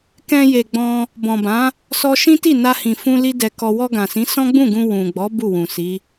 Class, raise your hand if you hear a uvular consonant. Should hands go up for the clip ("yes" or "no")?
no